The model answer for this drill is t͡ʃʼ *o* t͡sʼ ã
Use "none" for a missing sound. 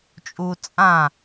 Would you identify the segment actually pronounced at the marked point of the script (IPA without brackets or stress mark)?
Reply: u